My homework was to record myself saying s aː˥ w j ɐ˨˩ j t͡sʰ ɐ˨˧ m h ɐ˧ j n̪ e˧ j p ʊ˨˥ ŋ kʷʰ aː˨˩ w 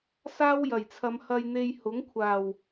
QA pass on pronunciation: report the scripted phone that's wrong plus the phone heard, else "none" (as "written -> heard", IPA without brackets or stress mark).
p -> h